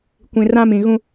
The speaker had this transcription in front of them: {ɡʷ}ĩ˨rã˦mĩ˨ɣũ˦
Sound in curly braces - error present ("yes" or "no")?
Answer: yes